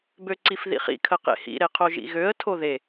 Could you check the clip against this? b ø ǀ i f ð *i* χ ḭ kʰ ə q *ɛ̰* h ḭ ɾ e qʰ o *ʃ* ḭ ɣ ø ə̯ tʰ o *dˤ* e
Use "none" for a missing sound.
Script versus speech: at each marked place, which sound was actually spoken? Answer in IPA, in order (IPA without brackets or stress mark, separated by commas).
ḭ, ḛ, ʒ, ð